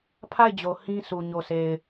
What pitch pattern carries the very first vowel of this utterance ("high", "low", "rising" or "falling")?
falling